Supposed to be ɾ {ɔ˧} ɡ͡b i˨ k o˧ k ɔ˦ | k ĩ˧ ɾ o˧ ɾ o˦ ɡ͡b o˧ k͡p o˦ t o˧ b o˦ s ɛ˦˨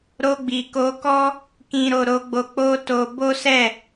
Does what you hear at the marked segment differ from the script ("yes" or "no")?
yes